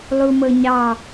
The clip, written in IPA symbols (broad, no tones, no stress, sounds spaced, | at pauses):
lˠ u m ɤ ɲ ɑ